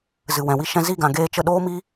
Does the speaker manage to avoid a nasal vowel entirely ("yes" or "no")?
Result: no